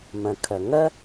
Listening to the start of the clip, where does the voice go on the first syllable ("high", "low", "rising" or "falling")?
low